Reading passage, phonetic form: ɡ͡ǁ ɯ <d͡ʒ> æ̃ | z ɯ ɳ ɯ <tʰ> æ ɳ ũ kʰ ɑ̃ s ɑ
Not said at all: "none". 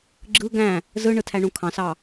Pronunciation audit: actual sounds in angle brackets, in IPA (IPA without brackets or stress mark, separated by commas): ɡ, tʰ